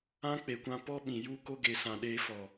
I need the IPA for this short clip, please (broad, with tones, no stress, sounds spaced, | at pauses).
ã˦ k͡p e˨ kʷ ã˧ p ɔ˦ ɓ ĩ˨ j u˦ k o˦ ɡ e˨ s ã˨ ɗ eː˧ f ɔ˨